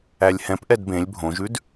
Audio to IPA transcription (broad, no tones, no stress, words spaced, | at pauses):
ælʲhɛ̃p ʔɛdbẽlʲ bʱõʒʉd